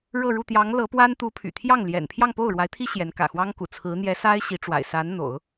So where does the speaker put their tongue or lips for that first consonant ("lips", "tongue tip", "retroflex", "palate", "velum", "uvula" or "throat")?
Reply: retroflex